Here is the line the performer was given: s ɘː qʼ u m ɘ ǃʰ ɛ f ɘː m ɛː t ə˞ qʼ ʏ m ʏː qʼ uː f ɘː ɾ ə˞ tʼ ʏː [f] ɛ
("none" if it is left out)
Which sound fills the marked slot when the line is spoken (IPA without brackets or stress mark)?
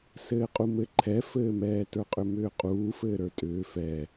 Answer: f